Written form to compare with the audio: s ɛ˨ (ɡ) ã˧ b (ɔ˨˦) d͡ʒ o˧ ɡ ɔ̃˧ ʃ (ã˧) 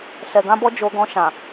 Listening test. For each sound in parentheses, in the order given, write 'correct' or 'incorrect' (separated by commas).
correct, incorrect, incorrect